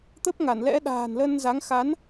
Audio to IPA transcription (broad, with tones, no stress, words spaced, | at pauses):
t̪ə˦˥p̚ŋa˧˩n lɛ̰˧˥ ɗa̤ː˨˩nlə˧nza˨˦ŋ xa˨˦n